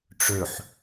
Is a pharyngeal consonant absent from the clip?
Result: no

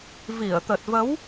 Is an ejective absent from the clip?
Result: yes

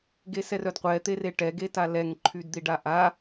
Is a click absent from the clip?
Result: no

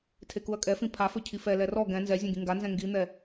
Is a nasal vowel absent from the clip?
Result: no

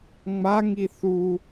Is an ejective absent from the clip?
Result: yes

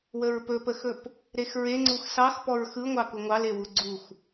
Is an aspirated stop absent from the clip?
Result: yes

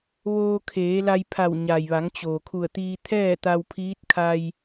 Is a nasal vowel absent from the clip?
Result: yes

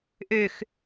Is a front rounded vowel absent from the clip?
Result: no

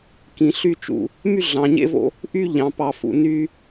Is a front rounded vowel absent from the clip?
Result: no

